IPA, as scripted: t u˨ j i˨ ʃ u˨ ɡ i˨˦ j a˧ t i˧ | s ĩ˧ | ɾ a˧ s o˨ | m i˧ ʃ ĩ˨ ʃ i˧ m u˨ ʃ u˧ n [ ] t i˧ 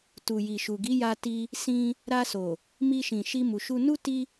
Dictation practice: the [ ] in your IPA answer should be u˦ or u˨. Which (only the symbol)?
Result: u˦